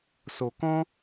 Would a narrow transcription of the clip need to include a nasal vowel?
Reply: yes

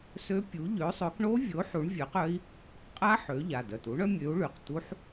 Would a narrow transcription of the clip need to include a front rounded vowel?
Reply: yes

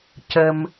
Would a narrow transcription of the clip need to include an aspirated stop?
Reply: no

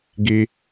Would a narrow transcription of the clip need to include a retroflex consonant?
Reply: no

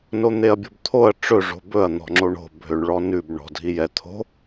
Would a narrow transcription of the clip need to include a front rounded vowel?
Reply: yes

